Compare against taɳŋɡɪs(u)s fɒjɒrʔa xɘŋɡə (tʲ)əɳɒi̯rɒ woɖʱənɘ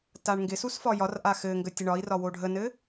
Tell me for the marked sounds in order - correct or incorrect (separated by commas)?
correct, correct